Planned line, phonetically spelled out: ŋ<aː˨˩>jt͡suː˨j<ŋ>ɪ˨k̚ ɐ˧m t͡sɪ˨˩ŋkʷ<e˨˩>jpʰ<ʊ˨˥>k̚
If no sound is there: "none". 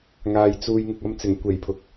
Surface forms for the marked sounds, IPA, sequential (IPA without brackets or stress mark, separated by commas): aː˨, ŋ, e˨˩, ʊ˨